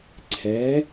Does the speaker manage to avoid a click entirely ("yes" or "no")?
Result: no